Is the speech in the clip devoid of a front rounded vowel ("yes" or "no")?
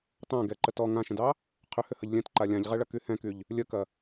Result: no